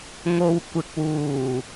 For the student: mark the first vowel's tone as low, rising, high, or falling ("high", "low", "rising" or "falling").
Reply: low